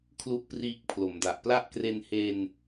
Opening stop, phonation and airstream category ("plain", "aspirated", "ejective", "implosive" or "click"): aspirated